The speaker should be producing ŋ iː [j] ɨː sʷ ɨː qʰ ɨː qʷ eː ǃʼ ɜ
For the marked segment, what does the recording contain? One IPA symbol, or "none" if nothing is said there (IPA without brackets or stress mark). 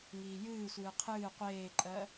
j